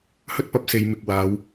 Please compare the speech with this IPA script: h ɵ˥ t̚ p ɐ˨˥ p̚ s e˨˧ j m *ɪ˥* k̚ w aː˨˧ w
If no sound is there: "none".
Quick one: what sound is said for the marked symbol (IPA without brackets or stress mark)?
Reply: ɪ˨